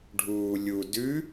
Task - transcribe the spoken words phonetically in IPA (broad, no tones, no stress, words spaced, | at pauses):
ɖʱuːlʲu dʉ